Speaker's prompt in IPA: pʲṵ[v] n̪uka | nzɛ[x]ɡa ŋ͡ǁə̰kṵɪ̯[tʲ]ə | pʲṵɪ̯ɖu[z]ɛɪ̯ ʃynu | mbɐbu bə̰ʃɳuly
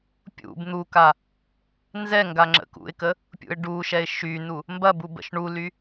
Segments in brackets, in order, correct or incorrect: incorrect, incorrect, incorrect, incorrect

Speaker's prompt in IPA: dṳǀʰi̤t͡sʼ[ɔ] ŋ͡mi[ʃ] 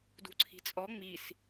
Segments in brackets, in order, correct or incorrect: correct, incorrect

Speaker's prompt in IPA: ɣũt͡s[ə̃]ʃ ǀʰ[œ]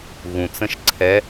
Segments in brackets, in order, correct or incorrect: correct, incorrect

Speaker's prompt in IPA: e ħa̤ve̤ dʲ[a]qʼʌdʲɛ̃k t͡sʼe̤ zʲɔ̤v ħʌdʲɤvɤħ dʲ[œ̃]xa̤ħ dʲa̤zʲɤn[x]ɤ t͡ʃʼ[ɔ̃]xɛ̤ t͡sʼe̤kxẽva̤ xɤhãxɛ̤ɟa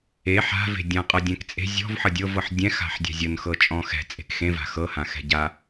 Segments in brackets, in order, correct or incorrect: incorrect, incorrect, correct, correct

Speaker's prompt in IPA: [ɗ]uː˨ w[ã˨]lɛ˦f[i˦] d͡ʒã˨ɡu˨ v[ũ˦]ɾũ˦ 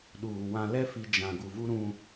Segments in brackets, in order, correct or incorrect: correct, correct, incorrect, incorrect

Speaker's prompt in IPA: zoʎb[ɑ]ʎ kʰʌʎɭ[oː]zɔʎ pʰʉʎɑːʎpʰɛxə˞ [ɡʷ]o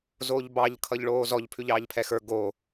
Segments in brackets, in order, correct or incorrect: correct, correct, incorrect

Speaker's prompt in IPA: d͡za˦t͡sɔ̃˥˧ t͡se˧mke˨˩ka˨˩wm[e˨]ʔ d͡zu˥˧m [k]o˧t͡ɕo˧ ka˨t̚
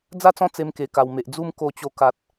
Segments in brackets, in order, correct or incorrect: correct, correct

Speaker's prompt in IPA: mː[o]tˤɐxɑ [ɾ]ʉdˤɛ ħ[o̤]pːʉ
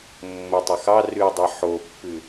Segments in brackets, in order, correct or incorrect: correct, incorrect, incorrect

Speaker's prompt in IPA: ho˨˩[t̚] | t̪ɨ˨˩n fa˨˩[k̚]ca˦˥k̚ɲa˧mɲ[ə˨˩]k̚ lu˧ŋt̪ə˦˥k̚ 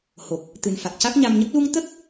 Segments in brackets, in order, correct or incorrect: incorrect, correct, incorrect

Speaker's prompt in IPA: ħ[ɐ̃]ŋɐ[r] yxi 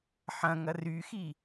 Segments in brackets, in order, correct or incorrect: correct, correct

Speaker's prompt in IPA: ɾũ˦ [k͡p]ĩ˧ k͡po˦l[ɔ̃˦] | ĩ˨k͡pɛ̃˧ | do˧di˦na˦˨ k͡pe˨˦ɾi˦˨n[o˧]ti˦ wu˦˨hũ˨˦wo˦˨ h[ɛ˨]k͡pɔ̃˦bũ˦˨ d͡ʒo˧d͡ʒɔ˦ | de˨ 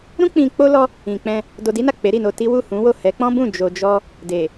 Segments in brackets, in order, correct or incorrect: correct, incorrect, correct, incorrect

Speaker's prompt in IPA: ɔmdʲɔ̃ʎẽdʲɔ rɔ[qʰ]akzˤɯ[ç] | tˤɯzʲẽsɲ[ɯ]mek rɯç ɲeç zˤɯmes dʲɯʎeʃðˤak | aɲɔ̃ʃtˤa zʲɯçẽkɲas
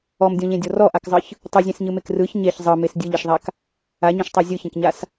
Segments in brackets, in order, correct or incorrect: incorrect, correct, correct

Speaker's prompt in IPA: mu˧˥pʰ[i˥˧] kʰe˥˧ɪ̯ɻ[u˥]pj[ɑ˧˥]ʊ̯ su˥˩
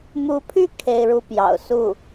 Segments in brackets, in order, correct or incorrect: incorrect, incorrect, incorrect

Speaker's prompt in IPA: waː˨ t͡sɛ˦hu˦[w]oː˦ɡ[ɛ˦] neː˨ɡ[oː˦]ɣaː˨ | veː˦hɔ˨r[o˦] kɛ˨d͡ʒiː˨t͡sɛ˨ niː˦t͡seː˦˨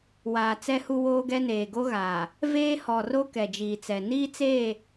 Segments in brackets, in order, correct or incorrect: correct, correct, incorrect, correct

